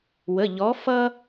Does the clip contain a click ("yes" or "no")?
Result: no